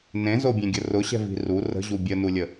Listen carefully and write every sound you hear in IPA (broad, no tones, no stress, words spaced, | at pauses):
nẽzobʲẽɡʲə rʊɕɛ̤vi̤ ru rə̤ʑu bʲənulʲə